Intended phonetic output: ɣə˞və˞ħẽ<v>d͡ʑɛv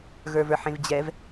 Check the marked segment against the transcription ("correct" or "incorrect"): correct